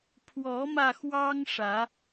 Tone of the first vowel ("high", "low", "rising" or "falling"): rising